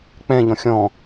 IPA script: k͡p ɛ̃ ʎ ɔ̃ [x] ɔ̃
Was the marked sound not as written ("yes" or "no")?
yes